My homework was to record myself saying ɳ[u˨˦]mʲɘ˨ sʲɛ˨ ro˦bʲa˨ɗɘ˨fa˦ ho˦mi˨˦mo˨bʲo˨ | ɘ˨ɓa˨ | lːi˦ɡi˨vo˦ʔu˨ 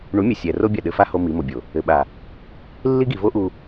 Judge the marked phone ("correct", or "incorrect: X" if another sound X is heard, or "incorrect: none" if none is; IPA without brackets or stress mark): correct